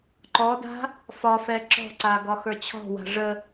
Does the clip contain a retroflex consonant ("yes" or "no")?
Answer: yes